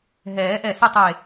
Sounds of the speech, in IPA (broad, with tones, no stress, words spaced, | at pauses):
ɦɛː˨˩˦ ʔɛ˧˩ sɪ˥˧tˤe˧˩